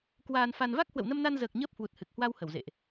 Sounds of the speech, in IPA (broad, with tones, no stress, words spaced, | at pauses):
kwaː˧nfa˧n va˦˥k̚hwə̰˧˨wnə˧mna˧n zəː˨˩k̚ ɲəː˦˥p̚hwu˨˩t̚ hɨ˨˩k̚hwa˧w hə˧˩wzḛ˧˨ʔ